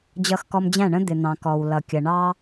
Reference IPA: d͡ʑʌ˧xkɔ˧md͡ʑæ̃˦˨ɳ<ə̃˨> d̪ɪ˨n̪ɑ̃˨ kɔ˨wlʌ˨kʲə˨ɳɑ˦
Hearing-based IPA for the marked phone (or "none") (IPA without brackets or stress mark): ə̃˦